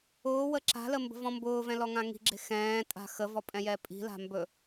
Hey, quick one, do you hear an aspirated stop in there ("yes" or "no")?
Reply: no